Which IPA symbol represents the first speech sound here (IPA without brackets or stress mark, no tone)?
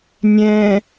nʲ